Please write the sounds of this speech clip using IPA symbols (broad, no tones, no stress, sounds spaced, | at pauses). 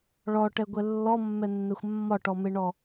ɭ ɔ ʈ ɛ ɡʷ ɛ lː ɔ mː ɛ nː ɛ xʷ mː ɒ ʈ ɔ m e ɳ ɔ